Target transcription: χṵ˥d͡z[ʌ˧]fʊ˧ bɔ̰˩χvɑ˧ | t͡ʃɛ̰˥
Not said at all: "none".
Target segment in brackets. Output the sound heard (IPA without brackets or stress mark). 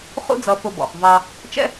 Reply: ʌ˧